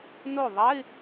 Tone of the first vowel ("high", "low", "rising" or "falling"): falling